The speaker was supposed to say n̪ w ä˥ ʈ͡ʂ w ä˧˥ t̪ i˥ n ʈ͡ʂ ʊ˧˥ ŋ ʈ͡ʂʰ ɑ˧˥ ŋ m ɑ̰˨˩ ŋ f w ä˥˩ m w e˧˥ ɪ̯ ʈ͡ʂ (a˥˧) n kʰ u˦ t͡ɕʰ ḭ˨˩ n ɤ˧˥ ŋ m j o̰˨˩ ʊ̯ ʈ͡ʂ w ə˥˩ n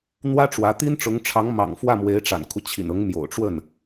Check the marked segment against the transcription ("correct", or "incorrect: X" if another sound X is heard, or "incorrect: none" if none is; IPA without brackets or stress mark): incorrect: a̰˨˩